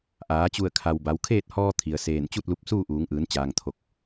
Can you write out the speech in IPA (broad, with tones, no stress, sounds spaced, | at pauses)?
ʔ aː˩˧ t͡ɕ u˧˩ ə̯ kʰ a˩ w b a˩˧ w kʰ eː˥˨ t̚ h ɔː˧ t̪ʰ i˩ ə̯ s eː˧˩ n t͡ɕ u˥˨ t̚ l u˧ p̚ s uː˥˨ ʔ uː˩˧ ŋ ʔ ɯː˩˧ n t͡ɕ aː˩ ŋ t̪ʰ o˧˩ k̚